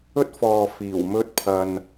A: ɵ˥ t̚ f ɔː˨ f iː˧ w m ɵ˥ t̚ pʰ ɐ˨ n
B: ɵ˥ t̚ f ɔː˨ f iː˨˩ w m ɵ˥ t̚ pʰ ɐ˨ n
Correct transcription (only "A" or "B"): B